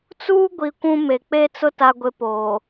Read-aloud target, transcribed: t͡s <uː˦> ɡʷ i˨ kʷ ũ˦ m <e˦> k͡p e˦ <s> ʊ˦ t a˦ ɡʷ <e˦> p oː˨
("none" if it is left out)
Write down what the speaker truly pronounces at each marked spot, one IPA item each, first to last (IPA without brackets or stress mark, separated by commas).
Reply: uː˦, e˨, t͡s, e˦